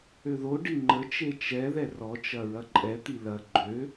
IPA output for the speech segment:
øðoɖi ŋ͡ǃət͡ʃe t͡ʃɛðɛ rɔt͡ʃɐ ɹɐǃʼɛt̪i lɐ ɡ͡ǃø

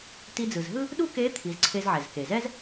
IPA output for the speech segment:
ti˧d͡zɯ˩zɦɯ˥ | ɗu˥ke˧˥ t̪ʰi˩˧zǀʰe˧zʕɛ˩z ke˩zɛ˥z

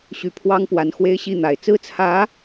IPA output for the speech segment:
ɕy˨˩ pʰwɑ˥ŋpwa˧˥nxwe˥ɪ̯ ɕi˥˩n̪a˨˩ɪ̯ t͡sɹ̩˥˩t͡sʰä˧˥

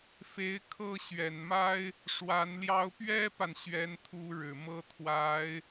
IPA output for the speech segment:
fe˧˥ɪ̯ kʰɤ˥˩ ɕɥɛ˨˩nma˥ɪ̯ | ʂwa˧˥nljɑ˥ʊ̯ pɥɛ˥pa˨n ɕɥɛ˥nt̪ʰu˥ ɻɻ̩˨˩mɤ˥t̪ʰwa˧˥ɪ̯

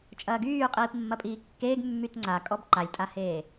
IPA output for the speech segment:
t͡ʃʼɐːɡyː qʼiːpmːɐpʼiːkːeːɡ mːytŋ͡ǀakʼɔb ǃalʲtʼaheː

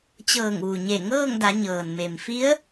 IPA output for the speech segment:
t͡ɕɤː˧˩ŋʋu˩ɲe˧˩ ŋɤː˥˨ŋda˩˧ ɲɤː˩nme˩m fi˧˥ə̯

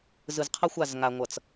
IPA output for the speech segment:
zɯ˨zqʰʌ˦xʷa˦˨z ŋa˨ŋʷʌ˨t͡s

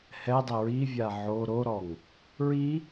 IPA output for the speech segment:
hɛdˤɪ ɹivʲa ʕo ɾoɾɔŋ | ɹi

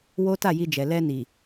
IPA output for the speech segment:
wo˦ ta˦˨ji˧d͡ʒɛ˨ lɛ˧ni˨

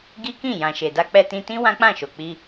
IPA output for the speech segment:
ɡi˦kĩ˦˨ jã˨ʃe˨da˧ k͡pɛ˧tĩ˧tĩ˦ wã˦k͡pã˦˨ʃo˨k͡pi˧

